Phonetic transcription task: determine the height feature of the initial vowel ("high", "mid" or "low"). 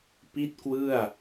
high